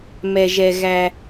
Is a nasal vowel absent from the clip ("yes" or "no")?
yes